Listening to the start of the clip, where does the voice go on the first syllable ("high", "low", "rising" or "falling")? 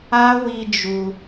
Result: high